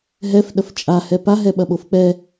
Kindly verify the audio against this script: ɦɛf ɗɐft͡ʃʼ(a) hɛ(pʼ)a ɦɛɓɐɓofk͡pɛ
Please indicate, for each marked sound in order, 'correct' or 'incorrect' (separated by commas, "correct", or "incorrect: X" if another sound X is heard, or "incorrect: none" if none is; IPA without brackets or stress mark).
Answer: correct, incorrect: p